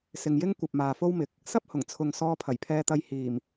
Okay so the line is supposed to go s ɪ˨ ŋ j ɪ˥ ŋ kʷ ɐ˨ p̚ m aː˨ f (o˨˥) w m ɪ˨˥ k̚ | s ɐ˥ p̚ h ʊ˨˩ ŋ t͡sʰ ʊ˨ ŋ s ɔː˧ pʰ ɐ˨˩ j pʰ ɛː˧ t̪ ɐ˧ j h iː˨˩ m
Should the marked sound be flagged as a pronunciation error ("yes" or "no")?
yes